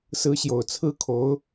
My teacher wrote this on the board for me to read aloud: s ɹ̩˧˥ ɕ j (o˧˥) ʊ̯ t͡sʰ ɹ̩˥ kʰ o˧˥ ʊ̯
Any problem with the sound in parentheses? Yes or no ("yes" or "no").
yes